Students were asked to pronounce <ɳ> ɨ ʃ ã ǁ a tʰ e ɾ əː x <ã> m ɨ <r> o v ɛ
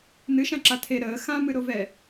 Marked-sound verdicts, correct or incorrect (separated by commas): incorrect, correct, incorrect